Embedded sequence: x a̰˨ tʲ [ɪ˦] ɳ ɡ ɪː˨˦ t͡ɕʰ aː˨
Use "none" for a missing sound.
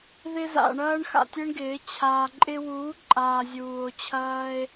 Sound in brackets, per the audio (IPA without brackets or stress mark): ɪ˦